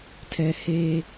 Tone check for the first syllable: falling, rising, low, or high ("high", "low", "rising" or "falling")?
high